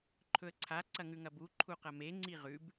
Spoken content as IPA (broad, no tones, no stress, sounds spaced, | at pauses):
ǃʰ ɵ ə̯ ǀʰ a ǀ ɐ ŋ ʉ ŋ ɐ b u ǃʰ u q ɐ m e ŋ͡ǀ i ʁ ʉ b